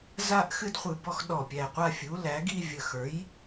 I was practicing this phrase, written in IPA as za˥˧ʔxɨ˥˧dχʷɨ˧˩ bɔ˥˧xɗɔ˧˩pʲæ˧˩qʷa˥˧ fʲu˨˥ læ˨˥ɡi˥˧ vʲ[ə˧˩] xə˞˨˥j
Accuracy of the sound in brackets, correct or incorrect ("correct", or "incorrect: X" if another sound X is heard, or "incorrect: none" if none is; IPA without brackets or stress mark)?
correct